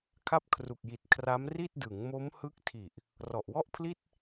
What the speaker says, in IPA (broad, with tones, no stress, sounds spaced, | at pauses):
kʰ a˦˥ p̚ kʰ r u˨˩ k̚ j i˨˩ t̚ kʰ r a˦˥ m r i˥˩ t̚ d ɯ˩˦ ŋ m o˦˥ m h ɯ˦˥ k̚ tʰ i˨˩ ʔ | r ɔ˨˩ ʔ w ɔ˥˩ ʔ pʰ l i˥˩ t̚